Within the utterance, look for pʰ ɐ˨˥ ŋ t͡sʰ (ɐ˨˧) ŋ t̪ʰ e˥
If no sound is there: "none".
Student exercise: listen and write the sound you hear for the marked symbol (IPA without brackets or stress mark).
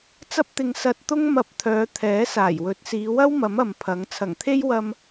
ɐ˨˩